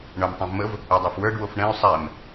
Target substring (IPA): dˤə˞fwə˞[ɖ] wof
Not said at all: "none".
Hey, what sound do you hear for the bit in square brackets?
ɖ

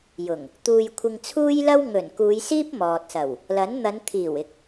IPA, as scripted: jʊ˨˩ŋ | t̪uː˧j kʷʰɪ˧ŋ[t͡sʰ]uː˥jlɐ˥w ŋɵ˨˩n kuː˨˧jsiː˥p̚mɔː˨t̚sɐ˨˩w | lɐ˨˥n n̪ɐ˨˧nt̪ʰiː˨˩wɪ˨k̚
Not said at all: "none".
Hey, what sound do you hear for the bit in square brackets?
t͡sʰ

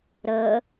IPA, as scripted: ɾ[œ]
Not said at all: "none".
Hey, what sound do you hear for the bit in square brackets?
ə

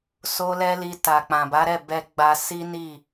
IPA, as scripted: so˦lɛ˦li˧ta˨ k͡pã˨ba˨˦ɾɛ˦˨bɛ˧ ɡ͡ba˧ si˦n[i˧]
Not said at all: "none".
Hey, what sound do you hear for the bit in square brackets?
i˦˨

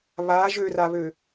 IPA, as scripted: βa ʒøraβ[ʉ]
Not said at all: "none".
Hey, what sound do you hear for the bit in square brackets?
ø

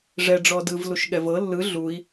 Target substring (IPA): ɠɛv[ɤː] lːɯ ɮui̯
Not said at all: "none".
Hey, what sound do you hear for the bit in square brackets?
ɤ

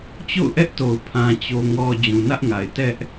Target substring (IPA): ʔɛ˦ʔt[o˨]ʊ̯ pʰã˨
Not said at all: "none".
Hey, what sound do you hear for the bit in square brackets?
o˨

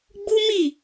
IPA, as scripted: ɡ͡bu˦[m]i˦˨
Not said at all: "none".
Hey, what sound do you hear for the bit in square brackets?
m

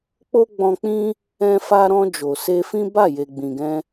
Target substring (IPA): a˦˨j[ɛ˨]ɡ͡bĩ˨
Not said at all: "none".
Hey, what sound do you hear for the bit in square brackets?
e˨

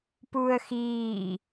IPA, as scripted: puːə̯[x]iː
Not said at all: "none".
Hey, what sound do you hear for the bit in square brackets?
x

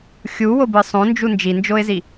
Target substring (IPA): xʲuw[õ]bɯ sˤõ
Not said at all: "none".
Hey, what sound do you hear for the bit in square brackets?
o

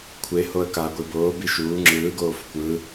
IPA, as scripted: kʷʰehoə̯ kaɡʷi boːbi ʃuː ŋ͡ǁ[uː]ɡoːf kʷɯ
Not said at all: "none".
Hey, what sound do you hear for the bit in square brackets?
ɯː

